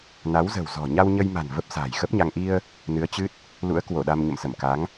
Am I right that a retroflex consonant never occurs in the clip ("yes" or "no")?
yes